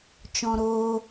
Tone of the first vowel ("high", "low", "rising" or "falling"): high